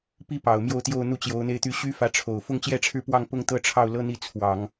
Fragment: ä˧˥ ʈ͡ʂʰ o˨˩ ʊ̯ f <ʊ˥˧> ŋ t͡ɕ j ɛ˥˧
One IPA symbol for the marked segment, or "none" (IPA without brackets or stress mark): ʊ˥˧